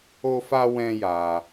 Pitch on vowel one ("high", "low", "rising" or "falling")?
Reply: high